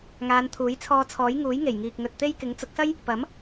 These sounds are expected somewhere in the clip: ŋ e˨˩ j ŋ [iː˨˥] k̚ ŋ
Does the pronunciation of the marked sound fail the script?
yes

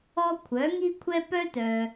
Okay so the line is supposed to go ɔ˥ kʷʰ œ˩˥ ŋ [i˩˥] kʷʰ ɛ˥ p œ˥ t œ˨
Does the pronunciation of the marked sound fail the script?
yes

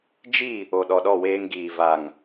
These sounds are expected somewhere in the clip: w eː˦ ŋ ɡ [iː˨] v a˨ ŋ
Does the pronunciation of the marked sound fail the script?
no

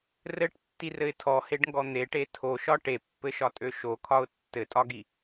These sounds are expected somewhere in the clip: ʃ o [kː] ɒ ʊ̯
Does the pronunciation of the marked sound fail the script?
yes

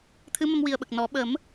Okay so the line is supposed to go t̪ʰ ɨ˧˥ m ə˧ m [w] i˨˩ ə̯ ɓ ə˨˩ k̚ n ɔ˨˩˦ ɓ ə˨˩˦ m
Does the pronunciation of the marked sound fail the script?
no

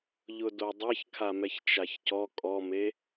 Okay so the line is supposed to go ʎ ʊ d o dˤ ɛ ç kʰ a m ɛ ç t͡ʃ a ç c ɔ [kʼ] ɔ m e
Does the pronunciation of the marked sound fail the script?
no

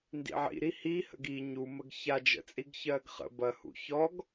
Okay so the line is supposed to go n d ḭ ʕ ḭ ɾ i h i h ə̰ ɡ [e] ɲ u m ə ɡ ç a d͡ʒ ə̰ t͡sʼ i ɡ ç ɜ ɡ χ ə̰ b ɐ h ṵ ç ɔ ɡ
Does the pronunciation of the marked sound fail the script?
yes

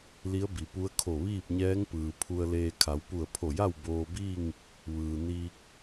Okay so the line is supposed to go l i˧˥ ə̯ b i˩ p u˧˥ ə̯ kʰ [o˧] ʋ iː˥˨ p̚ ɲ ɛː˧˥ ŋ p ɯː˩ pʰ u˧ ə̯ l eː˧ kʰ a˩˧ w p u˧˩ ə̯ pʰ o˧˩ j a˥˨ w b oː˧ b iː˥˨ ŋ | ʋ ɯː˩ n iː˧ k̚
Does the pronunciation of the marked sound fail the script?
yes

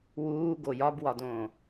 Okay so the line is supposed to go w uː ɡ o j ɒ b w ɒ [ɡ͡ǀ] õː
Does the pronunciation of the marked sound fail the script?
yes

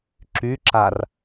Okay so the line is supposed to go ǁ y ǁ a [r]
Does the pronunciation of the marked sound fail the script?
no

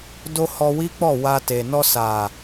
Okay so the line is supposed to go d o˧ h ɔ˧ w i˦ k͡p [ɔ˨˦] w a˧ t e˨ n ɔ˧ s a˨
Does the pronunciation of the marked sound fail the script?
yes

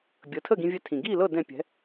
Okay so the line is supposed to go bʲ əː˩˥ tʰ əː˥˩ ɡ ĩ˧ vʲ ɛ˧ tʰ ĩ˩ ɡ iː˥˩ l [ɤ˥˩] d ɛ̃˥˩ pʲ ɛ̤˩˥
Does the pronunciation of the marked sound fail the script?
no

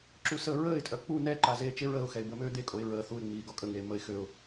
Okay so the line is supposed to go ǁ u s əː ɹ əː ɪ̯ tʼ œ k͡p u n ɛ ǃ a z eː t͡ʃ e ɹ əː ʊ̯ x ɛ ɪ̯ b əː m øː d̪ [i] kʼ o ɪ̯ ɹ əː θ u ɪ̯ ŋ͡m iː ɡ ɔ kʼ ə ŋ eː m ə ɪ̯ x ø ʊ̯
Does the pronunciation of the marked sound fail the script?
yes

